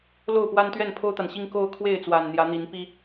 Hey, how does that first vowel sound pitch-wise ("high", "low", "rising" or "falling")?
falling